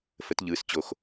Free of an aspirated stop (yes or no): yes